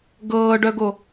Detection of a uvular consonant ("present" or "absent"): absent